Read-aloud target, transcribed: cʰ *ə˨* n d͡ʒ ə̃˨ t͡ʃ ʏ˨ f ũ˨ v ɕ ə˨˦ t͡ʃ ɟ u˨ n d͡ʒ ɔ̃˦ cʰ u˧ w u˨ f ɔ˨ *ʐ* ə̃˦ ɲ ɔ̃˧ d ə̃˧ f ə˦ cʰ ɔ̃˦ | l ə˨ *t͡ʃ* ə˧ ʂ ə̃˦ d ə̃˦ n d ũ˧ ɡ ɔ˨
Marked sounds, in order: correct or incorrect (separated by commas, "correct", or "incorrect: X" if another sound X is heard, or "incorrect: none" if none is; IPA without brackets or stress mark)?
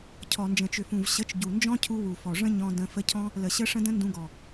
incorrect: ɔ˨, correct, incorrect: ɕ